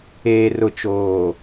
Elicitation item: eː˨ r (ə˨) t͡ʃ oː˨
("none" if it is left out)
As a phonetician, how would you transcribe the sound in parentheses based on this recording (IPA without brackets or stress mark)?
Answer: ʊ˨